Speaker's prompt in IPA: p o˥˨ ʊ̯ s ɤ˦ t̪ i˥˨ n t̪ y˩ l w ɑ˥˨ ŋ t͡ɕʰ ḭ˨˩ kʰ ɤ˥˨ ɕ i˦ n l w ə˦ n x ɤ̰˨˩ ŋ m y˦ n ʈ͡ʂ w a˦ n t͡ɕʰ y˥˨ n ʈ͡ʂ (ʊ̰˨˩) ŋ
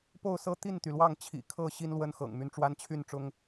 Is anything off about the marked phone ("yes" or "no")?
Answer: yes